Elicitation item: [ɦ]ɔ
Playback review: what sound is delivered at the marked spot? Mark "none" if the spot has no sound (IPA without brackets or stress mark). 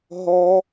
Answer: ɦ